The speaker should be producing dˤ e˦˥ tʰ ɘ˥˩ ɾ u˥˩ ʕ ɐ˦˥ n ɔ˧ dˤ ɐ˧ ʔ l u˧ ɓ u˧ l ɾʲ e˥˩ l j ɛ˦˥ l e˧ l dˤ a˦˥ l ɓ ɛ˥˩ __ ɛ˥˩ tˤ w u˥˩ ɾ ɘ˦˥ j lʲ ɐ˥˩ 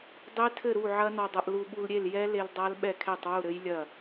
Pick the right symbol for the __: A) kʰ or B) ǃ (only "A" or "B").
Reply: A